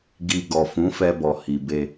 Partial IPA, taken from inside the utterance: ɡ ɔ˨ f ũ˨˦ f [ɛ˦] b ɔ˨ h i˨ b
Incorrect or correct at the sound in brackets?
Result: incorrect: ɛ˧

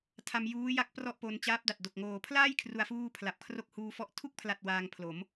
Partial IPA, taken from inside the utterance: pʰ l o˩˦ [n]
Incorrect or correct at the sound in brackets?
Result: incorrect: m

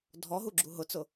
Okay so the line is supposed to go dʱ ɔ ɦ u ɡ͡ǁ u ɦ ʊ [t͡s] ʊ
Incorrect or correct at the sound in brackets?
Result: correct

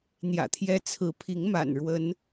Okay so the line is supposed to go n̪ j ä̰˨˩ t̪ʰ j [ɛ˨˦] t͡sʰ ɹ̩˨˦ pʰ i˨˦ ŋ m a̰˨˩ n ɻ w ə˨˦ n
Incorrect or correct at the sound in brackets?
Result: incorrect: ɛ˦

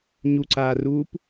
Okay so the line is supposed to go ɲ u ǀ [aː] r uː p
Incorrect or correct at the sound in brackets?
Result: correct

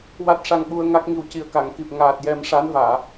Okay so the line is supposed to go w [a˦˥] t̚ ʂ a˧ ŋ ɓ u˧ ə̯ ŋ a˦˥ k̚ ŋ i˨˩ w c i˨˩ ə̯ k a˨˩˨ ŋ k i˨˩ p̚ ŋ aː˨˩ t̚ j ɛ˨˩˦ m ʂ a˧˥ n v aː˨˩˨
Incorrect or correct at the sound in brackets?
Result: correct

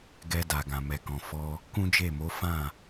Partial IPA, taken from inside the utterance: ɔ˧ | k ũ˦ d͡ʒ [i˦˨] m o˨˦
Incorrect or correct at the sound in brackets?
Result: incorrect: e˦˨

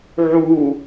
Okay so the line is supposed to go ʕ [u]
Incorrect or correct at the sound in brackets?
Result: correct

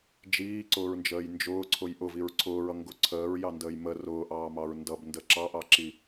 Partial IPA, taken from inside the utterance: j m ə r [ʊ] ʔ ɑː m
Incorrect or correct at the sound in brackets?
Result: incorrect: ʊː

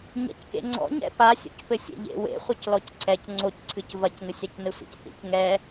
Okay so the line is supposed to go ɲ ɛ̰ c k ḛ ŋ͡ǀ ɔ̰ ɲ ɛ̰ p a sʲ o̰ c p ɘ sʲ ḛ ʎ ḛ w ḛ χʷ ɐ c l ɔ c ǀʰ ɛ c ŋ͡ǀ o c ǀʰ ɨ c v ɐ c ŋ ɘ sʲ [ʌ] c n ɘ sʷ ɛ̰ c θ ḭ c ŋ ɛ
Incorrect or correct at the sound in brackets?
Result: incorrect: a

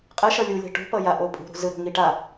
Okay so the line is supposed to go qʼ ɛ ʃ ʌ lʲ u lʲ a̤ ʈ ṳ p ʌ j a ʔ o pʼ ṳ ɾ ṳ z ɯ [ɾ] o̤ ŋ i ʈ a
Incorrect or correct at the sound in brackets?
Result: correct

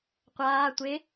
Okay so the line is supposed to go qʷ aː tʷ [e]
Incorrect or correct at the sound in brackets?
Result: correct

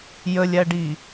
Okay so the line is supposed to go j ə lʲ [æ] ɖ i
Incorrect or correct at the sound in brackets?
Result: correct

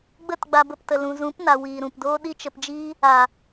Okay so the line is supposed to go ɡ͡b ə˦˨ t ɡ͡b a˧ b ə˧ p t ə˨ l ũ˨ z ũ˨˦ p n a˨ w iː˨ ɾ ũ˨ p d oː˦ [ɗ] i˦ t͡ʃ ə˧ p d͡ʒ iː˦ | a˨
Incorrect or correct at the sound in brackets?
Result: correct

